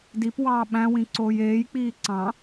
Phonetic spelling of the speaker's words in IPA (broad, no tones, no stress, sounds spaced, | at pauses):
d i p w ɑː ɓ æ̃ w ĩ ǀ oː j eː j k͡p iː ǀ ɑ̃